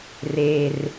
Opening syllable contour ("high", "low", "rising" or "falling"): low